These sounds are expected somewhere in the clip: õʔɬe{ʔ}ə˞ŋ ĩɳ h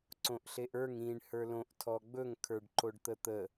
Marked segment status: correct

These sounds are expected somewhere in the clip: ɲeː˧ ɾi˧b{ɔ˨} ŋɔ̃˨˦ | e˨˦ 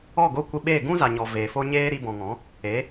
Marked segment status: incorrect: ɔ̃˨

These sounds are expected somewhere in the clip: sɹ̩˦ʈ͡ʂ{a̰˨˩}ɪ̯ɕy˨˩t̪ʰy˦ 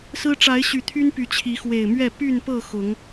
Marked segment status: incorrect: a˨˦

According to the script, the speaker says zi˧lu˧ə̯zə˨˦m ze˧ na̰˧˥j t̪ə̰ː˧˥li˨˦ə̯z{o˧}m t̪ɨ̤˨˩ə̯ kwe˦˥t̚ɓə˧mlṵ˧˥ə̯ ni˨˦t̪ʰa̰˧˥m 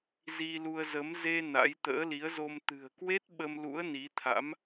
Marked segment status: correct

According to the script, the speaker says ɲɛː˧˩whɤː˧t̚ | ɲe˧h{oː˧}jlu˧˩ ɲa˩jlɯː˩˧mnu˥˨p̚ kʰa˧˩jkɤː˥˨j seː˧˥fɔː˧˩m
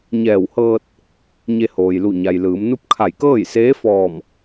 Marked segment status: incorrect: oː˩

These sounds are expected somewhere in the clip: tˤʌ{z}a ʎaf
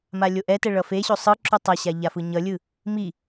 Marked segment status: incorrect: ɕ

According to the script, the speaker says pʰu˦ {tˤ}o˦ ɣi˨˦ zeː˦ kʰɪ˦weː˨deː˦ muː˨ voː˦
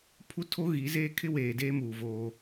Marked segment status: incorrect: tʰ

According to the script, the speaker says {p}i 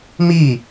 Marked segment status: incorrect: m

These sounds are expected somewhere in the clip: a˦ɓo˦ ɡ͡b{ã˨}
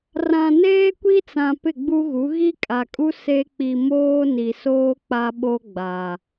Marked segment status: incorrect: a˨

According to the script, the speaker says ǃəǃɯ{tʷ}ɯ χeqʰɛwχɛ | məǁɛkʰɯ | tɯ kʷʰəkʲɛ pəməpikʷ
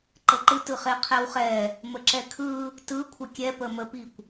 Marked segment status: incorrect: t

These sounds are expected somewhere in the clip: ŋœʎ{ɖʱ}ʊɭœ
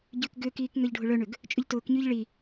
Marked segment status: correct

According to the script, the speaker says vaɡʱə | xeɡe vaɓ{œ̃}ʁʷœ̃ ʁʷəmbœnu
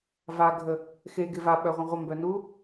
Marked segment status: incorrect: œ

